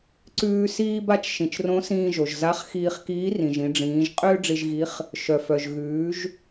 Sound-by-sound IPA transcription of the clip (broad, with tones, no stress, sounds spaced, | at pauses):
ǀ ʉː˧ s iː˧ b a˧ t͡ʃ ʃ ĩ˩ t͡ʃ r õ˧˥ s ĩː˧ ʒ o˩ ʒ z a˧˥ χ x iː˧ χ k iː˧˥ r ĩ˩ ʒ ĩ˩˧ ɖ͡ʐ ĩː˩˧ ʒ qʼ ʏː˥ ɖ͡ʐ i˧ ʒ ɣ i˧˥ χ | ʃ œ˩ f œ˩ ʒ ɣ ʉː˩˧ ʒ